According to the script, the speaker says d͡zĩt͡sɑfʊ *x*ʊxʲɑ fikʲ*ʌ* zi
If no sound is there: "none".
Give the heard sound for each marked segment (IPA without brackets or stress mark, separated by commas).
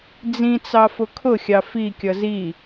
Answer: kʰ, ʌ